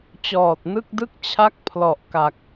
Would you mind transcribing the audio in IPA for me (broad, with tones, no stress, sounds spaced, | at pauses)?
t͡ɕ ɔː˨˩ t̚ n ɯ˥˩ k̚ d ɯ˥˩ k̚ t͡ɕʰ a˥˩ k̚ pʰ l ɔ˨˩ ʔ k a˨˩ k̚